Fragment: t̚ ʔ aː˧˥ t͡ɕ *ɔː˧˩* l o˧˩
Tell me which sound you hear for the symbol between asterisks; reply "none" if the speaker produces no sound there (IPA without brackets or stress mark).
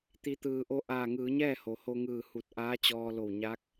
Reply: ɔː˧